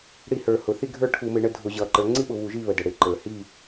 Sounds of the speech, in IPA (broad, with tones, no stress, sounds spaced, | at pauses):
ɽ i˧˩˧ h ə˞˩ h ʊ˩ θ i˦˨ ɡʱ ə˞˦˨ ʈʰ u˧˩˧ m ɪ˩˧ ɳ ə˦˨ dʱ ʊ˧˩˧ ʑ ʌ˩ ǃ ə˞˩˧ ŋ͡ǀ i˥ ɓ ʊ˩˧ β u˧˩˧ ʒ i˦˨ β ə˩ d ə˩ ɽ ɪ˧˩˧ ǃ ə˞˩ h i˦˨